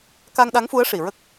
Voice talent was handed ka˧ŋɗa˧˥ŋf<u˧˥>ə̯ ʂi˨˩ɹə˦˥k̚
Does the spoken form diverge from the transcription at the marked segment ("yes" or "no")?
no